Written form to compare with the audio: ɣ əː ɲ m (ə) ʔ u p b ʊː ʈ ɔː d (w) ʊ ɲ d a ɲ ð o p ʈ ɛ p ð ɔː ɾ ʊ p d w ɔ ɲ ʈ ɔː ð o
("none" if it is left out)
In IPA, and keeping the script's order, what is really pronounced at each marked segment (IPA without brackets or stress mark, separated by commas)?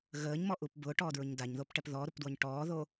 ɔ, ɹ